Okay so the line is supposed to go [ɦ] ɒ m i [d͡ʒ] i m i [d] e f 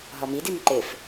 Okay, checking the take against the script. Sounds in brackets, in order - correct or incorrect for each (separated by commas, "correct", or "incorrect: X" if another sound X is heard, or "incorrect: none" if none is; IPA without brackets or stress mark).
correct, incorrect: d, incorrect: ǃ